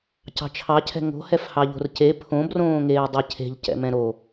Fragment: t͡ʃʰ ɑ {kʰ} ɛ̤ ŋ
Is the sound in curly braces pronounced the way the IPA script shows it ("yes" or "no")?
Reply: no